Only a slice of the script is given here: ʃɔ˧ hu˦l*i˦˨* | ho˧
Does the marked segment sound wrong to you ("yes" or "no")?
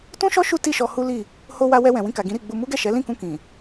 no